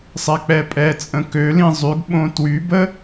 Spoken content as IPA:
sˤɛk͡pɛpʼɛ t͡sʼə̃kølĩ zˤyɡɓõ twybə

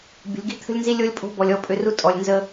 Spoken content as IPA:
bʲə̤˨lʲɡi̤˦t̪ʰə̤˦lʲnzi˦ lʲo˦lʲpʼo̤˦ bɔ˨lʲɔ˦˨pʼʏ˦˨ru˦ tʼɔ˨lʲnzə˦

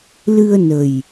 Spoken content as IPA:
lɨ˧ə̯nə˨˩j

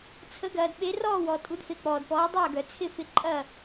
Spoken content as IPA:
t͡sʰə˩˥ɡɐː˩dɓe˩˥ rɔː˥˩wɔ˩ tʼu˩˥dfe˩˥k͡pɔː˩dpɔː˩˥ dˤɐː˥˩ɡœ˩t͡sʰɪ˥˩ fɪ˧ǃʼɐ˥˩

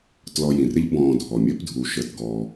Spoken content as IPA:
tlɔ˨ jĩ˩rɪ˦ʎ bɔ̃ː˨dʱɔ˩mʲəː˦p dʱu˨ʃəː˨tɡɔː˨

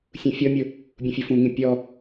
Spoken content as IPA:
sʲũfʲɔmʲʊ | bʲũfʲʊfũŋĩ pʲɔ

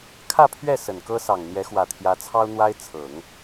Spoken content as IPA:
kʰä˥˧pʰɥɛ˥˩ sə˨˩nkɤ˥sɑ˨˩ŋ n̪jɛ˧˥xwä˨˩t̪ʰjä˧˥t͡sʰɑ˥ʊ̯ n̪wa˥ɪ̯ t͡sʰɤ˨˩˦ŋ

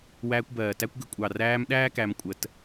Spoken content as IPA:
wæː˧kʷbɜː˨tæ˦kʷɡə˧ kʷʼɑ˨ræː˧m ɗæː˦kæ˧m kʷʼə˧t

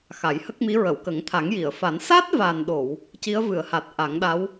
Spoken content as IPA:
xa˨˩˦jhə˦˥k̚mi˧˥ ɹə˨˩˨wkə˨˩˦ŋ t̪ʰa˨˩˦ŋji˨˩˨ə̯fa˨˩˦n sa˦˥t̚va˨˩nɗo˨˩˨w | ci˧˥ə̯vɨ˨˩˨ə̯ha˨˩t̚ ʔa˨˩˦ŋɗa˧˥w

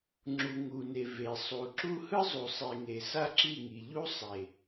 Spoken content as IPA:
ŋ͡ǁu˨ŋu˨ne˨ve˨ sˤu˨ǁu˦ hɯ˦zˤu˨sˤe˨ŋe˨ sa˦ǁi˦˨ŋi˨ʎu˦ sˤe˨

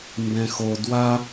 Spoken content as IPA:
mbɛ̃xo dwa

